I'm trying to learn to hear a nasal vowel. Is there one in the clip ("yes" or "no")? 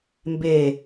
no